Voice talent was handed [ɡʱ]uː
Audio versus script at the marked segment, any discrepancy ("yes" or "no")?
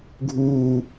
no